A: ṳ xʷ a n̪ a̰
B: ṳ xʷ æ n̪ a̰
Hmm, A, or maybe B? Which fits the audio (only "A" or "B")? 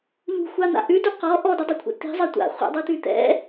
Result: A